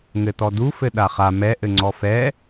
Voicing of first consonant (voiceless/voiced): voiced